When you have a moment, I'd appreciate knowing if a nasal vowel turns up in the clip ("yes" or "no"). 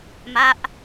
no